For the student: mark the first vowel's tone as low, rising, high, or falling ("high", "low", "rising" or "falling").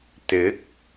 rising